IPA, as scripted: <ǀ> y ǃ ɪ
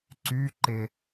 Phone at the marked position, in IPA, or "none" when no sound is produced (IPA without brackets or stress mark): ǀ